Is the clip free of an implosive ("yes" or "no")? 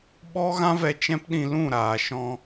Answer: no